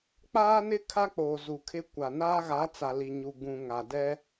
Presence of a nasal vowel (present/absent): present